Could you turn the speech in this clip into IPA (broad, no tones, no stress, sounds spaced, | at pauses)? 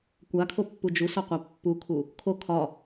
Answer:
kʷ a kʰ o pː u d͡ʒ u s ɒ qʷ a pː u kʰ u | kʰ o kʰ ɒ